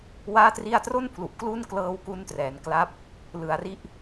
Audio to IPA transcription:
w aː˥˩ t r i˥˩ a̯ t r o˥˩ n pʰ l u˨˩ ʔ k l u˥˩ n k l ɤː˧ w k u˦˥ n t r ɛː˩˦ n k l a˦˥ p̚ | l ɯ˩˦ a̯ r i˦˥ ʔ

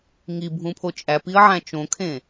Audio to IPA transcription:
ŋ i bʱ ũ pʰ o t͡ʃʼ æ p i ə̯ ʕ æ̃ t͡ʃ õ kʰ ẽ

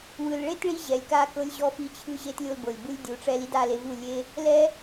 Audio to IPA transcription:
w ɯ˨ l ɭ e˦ t ɭ i˧ ʑ ɛ˨ lʲ k a˦˨ k ɤ˧ lʲ ʑ ɔ˧ f i˧ t͡ɕʰ ɯ˦˨ ʑ e˦ t lʲ o˧ l b ɤ˨ lʲ b ɯ˦ lʲ dʲ u˨˦ ʈ͡ʂ ɛ˦ l i˦ d a˦˨ l e˧ v u˦˨ lʲ e˦ | l ɛ˦

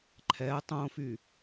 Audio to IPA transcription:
ǃʰ ɛ tˤ õ f y

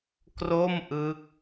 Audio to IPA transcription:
k r o˥˩ m ʔ ɯ˦˥ k̚

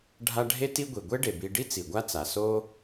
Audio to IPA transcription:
ɖʱ a˦ ɖʱ e˥ t i˦ ɡʷ i˩ ɡʷ e˥ ɖ e˩ b i˨ ɖ i˥ t͡s i˩ ɡʷ a˦ t͡s a˩ s o˥

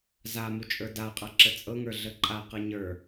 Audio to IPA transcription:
z a m u t͡ʃʼ ə˞ d a qʼ a ǁ ə t͡sʼ ɤ ŋ ə˞ ɮ ə ǃʼ a q ɤ ɲ ə˞

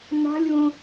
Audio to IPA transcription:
n a̤ lʲ w õ

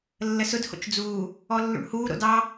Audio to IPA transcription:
lː ə s ʊ d h o̰ t͡ʃ d͡z uː | ɔ lː ṵ ɳ h uː ɾ o̰ d ɑ

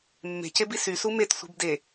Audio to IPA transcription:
mː e̤ c e b i s y s u m e t sʷ i̤ b d e

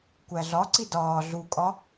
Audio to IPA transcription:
kʷ æ ɮ ɒ ǀ i d ɒː ɮ u kʼ ɒ

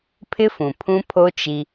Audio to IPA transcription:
pʰ ɪ˦ f ũ˨ pʰ ũ˦ pʰ o˦ t͡ʃ i˦

